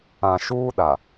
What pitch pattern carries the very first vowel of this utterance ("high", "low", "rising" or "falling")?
low